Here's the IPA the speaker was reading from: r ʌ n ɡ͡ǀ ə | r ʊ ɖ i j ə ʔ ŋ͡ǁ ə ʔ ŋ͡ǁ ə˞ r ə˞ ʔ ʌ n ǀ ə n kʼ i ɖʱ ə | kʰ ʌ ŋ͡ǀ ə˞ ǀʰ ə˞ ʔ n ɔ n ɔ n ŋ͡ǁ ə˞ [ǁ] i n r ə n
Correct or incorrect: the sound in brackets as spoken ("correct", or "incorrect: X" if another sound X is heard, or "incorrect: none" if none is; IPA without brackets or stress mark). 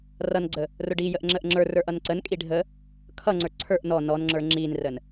incorrect: ŋ͡ǁ